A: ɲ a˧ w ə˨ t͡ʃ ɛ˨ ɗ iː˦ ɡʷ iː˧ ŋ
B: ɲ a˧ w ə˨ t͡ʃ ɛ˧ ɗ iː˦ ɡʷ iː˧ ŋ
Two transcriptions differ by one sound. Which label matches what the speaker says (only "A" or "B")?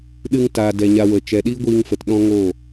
A